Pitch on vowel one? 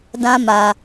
high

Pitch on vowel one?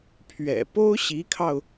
low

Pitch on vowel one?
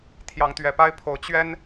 rising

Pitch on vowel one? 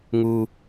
low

